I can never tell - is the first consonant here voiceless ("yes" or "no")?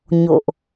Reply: no